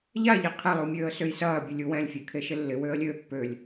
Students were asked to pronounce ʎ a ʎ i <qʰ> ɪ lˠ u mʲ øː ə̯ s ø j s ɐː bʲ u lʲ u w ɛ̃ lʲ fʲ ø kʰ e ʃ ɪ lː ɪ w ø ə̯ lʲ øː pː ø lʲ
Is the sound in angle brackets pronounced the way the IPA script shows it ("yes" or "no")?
yes